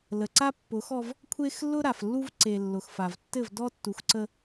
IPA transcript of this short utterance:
l ə˨ ǀ a˦ pː ʊ˨˦ x ɔ˦ v | kʷʰ e˦ x lː ʊ˦ ɾ a˨ f lː u˦ v ǀ e˨ lː ʊ˨ x f a˨ v tː ɘ˦˨ v d ɔ˦ tː u˨ x ǀ ə˦

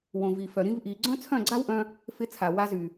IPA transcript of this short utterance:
w õ˨ v i˨ f œ˨ ɾ ĩ˧ v ʔ i˨ ɡ͡ǀ œ̃˦ t͡sʰ œ̃˦˨ ɡ͡ǀ a˦ w ʔ œ̃˧ | f ɪ˧ t͡sʰ a˨ w a˧ z y˨

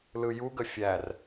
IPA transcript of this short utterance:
l ɯ j u ɡ ə fʲ æ r

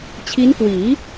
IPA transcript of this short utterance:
t͡ɕʰ i˦˥ n k w iː˩˦

